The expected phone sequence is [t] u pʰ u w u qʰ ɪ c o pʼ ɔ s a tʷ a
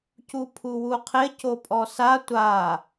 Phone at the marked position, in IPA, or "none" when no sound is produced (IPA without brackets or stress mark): c